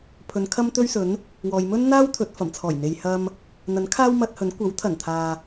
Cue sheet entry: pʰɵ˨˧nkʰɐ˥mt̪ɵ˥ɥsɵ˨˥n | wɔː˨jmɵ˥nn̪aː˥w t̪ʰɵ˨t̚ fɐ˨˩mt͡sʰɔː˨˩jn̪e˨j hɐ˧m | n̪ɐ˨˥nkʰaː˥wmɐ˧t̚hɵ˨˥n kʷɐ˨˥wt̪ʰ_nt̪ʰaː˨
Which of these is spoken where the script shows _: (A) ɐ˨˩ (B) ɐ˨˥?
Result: A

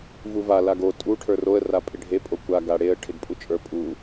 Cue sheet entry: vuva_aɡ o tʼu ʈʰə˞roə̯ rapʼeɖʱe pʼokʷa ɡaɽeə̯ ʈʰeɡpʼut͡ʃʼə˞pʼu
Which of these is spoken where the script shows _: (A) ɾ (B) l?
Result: B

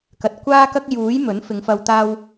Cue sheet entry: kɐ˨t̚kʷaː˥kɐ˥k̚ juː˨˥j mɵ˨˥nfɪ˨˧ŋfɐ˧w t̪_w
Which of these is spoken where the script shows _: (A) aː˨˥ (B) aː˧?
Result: B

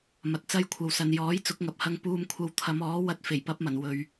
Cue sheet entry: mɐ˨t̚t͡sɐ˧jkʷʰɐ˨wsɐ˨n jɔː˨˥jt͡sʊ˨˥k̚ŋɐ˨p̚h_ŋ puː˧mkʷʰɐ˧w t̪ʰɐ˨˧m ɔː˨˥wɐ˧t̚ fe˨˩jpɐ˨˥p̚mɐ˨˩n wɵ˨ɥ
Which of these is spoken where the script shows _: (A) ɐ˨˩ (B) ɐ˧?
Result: B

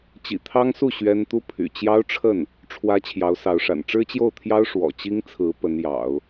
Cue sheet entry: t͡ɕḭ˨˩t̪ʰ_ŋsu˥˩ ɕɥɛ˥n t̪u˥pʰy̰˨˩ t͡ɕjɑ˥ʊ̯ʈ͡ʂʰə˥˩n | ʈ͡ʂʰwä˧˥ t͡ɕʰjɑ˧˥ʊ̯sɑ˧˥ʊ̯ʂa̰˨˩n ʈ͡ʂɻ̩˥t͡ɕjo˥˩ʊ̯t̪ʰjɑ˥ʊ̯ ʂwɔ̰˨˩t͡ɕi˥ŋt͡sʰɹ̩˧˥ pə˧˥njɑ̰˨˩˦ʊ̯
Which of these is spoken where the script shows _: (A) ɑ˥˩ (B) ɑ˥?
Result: B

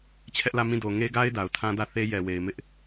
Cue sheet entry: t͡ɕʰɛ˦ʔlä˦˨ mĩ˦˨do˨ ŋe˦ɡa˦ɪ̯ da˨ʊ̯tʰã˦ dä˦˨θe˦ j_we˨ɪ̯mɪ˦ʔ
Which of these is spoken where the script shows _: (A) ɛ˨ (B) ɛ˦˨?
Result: A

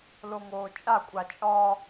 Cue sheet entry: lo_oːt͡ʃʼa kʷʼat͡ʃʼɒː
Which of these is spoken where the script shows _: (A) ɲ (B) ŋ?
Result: B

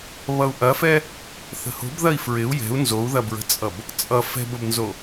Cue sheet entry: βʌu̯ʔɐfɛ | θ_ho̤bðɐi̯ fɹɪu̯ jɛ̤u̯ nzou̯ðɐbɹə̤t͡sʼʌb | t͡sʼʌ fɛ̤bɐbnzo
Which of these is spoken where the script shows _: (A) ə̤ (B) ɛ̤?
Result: A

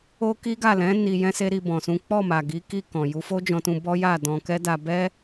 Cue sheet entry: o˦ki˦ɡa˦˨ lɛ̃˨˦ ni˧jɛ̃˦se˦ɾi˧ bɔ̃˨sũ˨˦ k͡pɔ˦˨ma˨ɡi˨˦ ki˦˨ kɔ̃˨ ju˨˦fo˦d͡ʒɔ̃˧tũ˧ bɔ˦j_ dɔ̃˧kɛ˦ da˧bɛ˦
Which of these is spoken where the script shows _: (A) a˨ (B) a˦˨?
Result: B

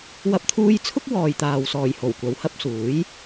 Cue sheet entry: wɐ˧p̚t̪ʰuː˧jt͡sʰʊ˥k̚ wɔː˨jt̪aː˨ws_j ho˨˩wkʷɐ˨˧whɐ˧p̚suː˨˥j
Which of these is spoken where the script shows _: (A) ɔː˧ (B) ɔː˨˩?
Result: B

